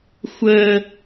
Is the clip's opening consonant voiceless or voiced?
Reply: voiceless